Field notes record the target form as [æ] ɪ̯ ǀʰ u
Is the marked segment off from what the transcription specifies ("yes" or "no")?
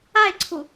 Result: yes